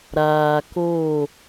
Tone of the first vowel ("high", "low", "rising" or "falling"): low